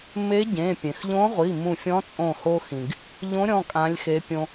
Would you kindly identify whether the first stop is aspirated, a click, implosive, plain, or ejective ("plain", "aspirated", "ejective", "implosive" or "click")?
plain